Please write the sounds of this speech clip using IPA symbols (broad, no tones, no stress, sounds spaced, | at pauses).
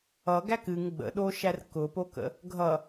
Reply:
ʌ ɡ æ k ɨ ŋ ɡ͡b ə̰ ɗ o ʃ æ r k ʊ p o k ə̰ | ɡʱ ʌ